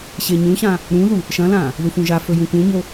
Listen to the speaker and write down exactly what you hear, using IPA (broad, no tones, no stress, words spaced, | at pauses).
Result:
ɕeɲũɕã | ɾũðu | ʃɐ̃lã | ðufũʒafɵ jũkũɲo